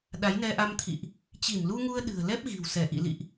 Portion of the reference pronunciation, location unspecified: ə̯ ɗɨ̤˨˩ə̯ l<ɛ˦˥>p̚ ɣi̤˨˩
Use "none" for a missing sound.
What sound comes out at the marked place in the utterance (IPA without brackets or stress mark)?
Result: ɛ˦˥